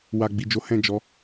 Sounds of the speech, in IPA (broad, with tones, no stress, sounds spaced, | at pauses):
w a˨ ɡ͡b i˨ d͡ʒ o˨˦ h ɛ̃˦˨ d͡ʒ ɔ˨˦